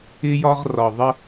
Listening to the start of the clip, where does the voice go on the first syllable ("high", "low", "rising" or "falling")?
high